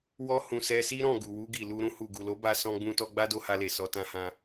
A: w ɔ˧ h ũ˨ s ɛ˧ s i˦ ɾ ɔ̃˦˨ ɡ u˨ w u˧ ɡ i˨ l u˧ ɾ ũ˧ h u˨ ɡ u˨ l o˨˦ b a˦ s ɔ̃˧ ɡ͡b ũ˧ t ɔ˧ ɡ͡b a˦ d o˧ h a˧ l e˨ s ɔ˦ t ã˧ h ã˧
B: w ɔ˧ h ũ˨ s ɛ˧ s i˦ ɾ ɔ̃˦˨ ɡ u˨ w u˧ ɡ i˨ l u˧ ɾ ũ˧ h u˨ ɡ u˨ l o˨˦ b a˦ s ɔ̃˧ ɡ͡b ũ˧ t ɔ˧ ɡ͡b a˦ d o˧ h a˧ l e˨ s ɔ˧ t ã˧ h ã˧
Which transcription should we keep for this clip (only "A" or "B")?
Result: B